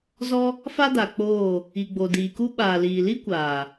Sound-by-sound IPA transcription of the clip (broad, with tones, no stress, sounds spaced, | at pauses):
z ɔ˦ | f a˦ d a˨ k͡p oː˦˨ | i˨ ɡ͡b o˨ d iː˨ k u˦ ɓ aː˨ l iː˨ l i˦ kʷ aː˨